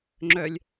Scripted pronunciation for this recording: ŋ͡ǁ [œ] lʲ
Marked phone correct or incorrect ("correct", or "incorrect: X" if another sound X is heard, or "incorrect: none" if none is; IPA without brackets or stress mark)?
correct